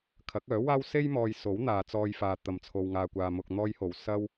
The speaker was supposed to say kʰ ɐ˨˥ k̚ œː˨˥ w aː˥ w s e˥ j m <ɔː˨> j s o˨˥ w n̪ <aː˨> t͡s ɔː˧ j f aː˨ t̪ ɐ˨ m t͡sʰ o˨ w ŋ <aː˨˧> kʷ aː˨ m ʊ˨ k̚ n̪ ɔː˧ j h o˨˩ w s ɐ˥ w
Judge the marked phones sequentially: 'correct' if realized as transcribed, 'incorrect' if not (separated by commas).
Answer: correct, correct, incorrect